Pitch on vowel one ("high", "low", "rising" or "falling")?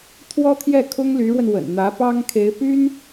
high